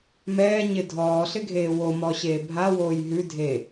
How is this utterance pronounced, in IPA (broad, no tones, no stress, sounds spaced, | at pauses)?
m ɛː ɲ ɪ dʱ ɔː ɬ ɪ ɡʱ eː w o m ɔ ɕ eː bʱ a w oː j ɦ ʉ dʱ eː